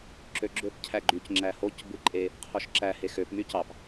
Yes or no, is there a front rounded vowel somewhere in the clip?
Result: yes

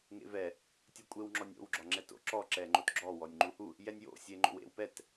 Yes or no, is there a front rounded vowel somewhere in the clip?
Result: no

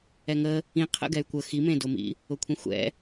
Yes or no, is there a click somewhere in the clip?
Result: no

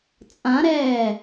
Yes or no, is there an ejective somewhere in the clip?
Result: yes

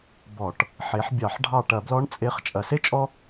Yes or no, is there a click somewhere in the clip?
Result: no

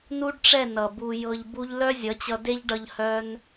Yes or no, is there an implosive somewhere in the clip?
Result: no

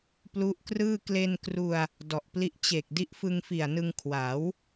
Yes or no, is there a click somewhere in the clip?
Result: no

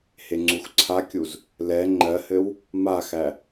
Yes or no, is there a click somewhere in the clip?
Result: yes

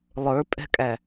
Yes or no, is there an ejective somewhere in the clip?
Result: yes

